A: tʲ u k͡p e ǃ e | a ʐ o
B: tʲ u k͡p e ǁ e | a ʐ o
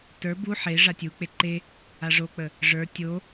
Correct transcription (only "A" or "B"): A